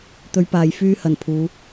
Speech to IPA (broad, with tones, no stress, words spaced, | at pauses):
t̪ɵ˨˧ɥpaː˨j fyː˥hɐ˨˩n pʰuː˨˧